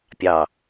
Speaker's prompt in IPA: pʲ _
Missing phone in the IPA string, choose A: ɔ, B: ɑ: B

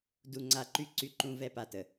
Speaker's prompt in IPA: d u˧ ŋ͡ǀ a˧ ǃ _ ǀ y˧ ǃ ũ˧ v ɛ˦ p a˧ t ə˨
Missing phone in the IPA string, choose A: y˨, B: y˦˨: B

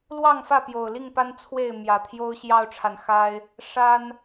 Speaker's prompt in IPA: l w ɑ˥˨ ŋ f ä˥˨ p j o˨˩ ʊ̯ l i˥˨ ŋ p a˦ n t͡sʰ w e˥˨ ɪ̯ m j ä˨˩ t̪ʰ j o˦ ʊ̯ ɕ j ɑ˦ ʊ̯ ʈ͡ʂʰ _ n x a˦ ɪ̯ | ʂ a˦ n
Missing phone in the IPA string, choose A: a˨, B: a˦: A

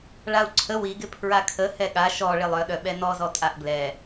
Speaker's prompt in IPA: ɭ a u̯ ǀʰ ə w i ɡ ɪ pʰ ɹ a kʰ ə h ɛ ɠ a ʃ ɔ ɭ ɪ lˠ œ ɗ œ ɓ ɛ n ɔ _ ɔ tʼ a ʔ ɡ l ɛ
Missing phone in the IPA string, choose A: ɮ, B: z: B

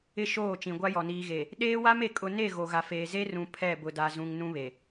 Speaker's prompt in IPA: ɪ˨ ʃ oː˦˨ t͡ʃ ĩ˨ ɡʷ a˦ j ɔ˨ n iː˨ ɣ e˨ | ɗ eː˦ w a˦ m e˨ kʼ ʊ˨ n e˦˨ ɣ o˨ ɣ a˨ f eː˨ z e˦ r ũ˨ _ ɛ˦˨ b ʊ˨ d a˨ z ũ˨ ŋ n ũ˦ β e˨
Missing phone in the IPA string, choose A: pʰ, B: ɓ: A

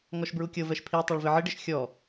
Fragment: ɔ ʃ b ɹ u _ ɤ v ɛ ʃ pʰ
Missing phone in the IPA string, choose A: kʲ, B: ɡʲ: A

